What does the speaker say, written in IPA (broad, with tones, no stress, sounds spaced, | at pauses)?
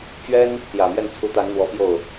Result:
t͡ɕ ɥ ɛ˥ n | t̪ j ä˨˩ m j ɛ˥˩ n t͡sʰ u˧˥ t̪ a˧˥ n n̪ w ɔ˧˥ p j o˥˩ ʊ̯